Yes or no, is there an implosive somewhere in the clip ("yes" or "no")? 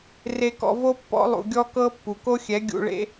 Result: no